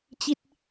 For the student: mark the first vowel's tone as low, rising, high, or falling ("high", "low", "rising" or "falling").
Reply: falling